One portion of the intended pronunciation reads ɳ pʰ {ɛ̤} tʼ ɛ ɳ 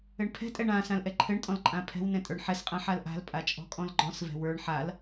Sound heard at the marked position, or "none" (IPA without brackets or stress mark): ɛ̤